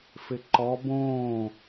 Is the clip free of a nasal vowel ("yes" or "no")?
no